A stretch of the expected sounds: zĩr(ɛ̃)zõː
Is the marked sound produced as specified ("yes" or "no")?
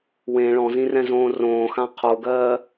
yes